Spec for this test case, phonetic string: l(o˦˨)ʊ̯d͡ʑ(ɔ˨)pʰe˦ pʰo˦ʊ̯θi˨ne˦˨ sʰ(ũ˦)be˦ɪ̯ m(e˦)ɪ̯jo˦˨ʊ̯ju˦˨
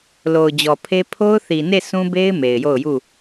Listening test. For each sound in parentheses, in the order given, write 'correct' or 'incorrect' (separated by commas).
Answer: incorrect, correct, correct, incorrect